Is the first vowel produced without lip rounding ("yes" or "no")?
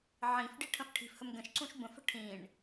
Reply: yes